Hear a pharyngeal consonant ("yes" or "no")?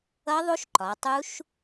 no